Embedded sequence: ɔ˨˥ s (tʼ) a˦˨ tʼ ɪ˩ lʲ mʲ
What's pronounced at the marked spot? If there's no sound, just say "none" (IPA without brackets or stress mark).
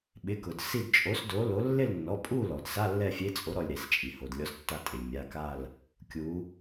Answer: tː